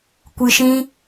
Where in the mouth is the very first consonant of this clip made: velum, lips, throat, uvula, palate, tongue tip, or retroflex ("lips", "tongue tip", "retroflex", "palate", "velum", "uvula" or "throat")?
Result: velum